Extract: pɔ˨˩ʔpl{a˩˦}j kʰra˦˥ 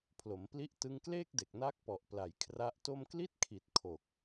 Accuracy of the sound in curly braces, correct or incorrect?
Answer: correct